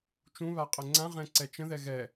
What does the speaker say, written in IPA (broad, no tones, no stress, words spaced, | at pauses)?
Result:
t͡ʃũβaqʼə ŋ͡ǀãʁɛ̃ǀɛ t͡ʃə̃ðɛ ɣɛ